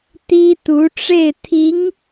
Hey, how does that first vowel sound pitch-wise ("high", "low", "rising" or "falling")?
high